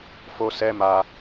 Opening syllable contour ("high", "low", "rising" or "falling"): high